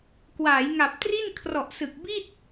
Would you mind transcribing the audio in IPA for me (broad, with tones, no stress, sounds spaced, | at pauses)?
k w aː˩˦ j ŋ a˨˩ p̚ t r i˥˩ n kʰ r ɔ˨˩ ʔ s ɯ˨˩ k̚ b i˥˩ t̚